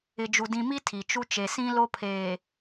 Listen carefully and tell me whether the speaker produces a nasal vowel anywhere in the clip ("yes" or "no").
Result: yes